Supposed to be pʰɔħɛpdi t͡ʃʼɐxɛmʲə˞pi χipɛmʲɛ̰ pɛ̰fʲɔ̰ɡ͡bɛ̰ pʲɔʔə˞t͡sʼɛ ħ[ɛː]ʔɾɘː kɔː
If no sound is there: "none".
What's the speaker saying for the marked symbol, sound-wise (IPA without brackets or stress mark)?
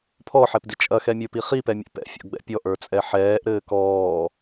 ɛː